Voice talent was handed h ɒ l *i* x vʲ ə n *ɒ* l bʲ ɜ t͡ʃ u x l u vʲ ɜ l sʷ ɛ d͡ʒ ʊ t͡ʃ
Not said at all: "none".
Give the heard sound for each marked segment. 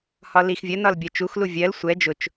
i, ɒ

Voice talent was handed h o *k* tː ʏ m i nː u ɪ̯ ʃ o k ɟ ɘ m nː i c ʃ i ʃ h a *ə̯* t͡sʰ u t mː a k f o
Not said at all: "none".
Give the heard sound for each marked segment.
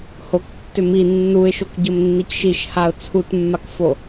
k, ʊ̯

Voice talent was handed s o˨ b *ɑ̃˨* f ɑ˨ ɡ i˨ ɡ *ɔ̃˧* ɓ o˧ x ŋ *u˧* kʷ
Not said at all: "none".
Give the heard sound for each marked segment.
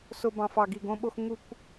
ɑ̃˨, õ˧, u˧

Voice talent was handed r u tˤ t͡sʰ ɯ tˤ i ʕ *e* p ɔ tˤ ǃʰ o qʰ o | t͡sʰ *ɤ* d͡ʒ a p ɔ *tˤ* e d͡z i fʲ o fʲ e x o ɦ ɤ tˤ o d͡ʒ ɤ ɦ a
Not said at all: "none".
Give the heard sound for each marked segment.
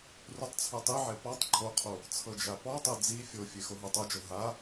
e, ɤ, tˤ

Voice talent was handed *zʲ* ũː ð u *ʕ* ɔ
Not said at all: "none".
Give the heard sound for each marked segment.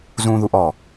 z, ʔ

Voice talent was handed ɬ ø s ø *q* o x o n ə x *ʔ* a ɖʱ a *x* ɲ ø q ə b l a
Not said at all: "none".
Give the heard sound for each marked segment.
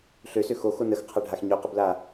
x, qʰ, x

